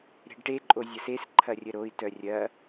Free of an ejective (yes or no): no